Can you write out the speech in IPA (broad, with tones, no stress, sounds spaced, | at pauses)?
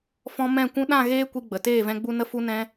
f ɔ̃˧ m ɛ̃˦˨ kʷ ũ˧ ɗ ã˦˨ ɣ eː˦ kʷ i˧ ɡ͡b ə˨ t eː˦˨ v ɛ̃˧ ɡ͡b u˧ n ə˧ f u˧ n ɛ̃˧